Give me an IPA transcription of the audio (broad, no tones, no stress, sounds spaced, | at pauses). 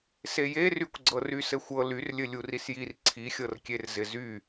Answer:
s e j e r y kʷ ɡ͡ǀ ɤ r y s ɘ xʷ ɤ l y r lʲ ɘ lʲ u r i s j i r ǀʰ i xʲ ɤ r kʲ e r z ɪ z y